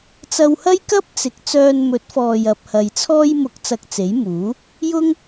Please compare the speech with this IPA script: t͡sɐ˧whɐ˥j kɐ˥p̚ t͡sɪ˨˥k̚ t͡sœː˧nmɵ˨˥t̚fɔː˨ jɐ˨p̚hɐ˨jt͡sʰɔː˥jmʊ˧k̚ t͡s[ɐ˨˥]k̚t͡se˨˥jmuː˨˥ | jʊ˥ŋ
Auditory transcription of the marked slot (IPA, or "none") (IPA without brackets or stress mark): ɐ˧